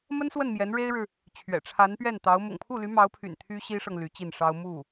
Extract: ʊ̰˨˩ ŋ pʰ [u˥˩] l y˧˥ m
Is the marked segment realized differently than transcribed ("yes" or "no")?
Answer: no